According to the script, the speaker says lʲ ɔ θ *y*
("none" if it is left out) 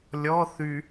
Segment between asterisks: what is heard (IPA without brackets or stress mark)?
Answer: y